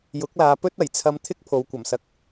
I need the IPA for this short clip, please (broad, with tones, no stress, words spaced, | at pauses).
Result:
jʊ˨˥k̚laː˨˧ pɵ˥t̚ɐ˨˩jt͡sʰɐ˧mt̪ʰɪ˥k̚ pʰo˨˧wkʷɐ˨˩msɐ˧k̚